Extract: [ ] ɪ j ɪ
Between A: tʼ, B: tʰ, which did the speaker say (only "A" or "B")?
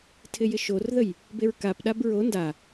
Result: B